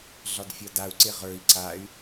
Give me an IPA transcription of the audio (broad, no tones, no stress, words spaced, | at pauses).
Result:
ɮɒdfʲɒdau̯ǀe ʁə˞i̯ ǀay̯